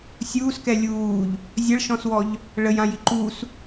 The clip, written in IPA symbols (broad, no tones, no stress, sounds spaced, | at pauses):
sʲ uː s k ɛ lʲ uː ʎ | zʲ ɐ ɭ ʃ ɔ̃ s w ɔ ʎ | ɭ ə j ã j i ǃ u s